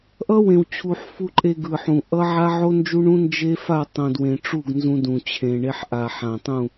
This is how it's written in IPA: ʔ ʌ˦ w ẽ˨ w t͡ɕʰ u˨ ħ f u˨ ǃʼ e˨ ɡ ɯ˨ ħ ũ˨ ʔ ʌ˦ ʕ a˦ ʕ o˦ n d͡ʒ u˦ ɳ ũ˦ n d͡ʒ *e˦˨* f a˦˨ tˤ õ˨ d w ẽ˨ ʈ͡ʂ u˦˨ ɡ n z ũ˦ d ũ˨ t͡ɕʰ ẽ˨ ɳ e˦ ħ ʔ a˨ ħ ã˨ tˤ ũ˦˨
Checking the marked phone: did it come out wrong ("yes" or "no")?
yes